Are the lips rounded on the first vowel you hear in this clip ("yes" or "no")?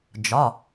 yes